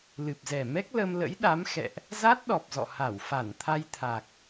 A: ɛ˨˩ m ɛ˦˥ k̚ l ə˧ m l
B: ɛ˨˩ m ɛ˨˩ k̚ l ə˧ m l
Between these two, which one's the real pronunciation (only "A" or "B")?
A